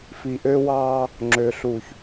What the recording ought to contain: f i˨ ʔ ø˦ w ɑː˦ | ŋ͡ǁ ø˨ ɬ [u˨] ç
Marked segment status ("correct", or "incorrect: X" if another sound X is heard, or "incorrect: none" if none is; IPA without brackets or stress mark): correct